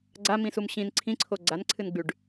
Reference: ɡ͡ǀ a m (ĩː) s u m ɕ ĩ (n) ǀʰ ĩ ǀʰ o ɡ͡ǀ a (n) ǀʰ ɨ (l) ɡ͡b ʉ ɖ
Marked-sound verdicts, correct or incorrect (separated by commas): incorrect, correct, correct, incorrect